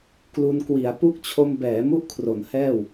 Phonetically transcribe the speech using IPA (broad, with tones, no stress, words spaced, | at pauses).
klu˧n kwi˩˦a̯ pu˦˥k̚ t͡ɕʰo˧mbɛː˩˦ mu˥˩ʔkʰro˩˦nhɛː˥˩w